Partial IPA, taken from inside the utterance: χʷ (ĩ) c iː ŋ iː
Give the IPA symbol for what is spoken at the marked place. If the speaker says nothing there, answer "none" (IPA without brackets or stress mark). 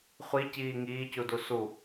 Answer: i